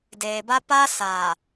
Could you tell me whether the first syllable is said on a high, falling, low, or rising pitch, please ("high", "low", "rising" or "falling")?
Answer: low